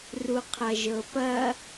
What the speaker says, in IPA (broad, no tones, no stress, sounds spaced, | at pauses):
r u qʰ ɐ ʒ ɤ p ɐ